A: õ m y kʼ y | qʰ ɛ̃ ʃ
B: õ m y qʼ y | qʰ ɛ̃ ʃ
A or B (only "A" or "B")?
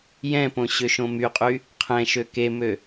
B